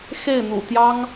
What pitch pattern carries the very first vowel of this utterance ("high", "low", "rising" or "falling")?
falling